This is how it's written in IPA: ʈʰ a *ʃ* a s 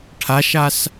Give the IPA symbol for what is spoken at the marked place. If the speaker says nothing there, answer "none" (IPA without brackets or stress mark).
ʃ